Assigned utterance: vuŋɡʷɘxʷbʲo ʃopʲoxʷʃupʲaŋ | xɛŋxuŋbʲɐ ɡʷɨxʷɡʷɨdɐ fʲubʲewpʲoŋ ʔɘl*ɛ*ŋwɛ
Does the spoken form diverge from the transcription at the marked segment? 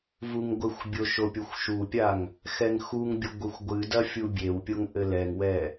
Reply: no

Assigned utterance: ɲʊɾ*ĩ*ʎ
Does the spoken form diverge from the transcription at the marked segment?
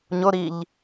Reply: yes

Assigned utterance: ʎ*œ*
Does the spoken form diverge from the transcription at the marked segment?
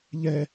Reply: yes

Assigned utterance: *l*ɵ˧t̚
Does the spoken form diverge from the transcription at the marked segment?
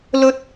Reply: no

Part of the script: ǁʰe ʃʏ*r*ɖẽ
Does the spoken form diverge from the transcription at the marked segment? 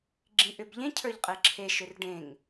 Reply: no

